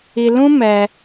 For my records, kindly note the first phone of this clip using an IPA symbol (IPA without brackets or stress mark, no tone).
i